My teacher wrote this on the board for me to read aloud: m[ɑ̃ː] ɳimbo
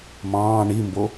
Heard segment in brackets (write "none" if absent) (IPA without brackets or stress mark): ɑ̃ː